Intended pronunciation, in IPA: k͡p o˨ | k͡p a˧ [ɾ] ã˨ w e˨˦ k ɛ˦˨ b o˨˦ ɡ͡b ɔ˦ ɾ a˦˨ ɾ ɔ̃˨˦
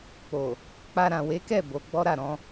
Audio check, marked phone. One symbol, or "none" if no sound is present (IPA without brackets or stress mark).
ɾ